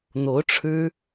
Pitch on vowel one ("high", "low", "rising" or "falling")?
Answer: rising